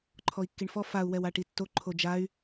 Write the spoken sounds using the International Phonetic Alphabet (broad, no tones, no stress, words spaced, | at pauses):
ǃʰɔi̯kːiɳfɔ fau̯ wɛwaʈitːo ǃʰod͡ʒay̯